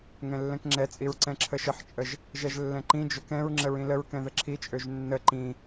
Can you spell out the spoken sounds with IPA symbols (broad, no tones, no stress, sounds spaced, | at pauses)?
ŋ ɛ̃ lː ɛ̃ k ŋ͡ǁ ɛ t͡sʼ i ɹ ǀ ɛ̃ ǁʰ ə ʃ ə ħ t͡ʃʼ ə ʒ | ʒ ɛ ʒ lː ɛ̃ ǃ ĩ d͡ʒ ø k ɛ̃ ɹ ŋ͡ǁ ə ɹ ĩ l ə ɹ k ɛ̃ ð ə ǁʰ i t͡ʃʼ ø ʒ nː ə ǃ ĩ